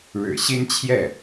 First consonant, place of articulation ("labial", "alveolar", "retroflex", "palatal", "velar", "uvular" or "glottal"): retroflex